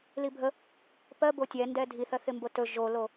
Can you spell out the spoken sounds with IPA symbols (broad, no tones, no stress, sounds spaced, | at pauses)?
l i bʱ ə | p ɜ b o tʲ ɛ n d ɛ dʱ i θ ɜ θ ɪ m b o t ɵ ʒ o l o